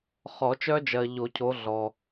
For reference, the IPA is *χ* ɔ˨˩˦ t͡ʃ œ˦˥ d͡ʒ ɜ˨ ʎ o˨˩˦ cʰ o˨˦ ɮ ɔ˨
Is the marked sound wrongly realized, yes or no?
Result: no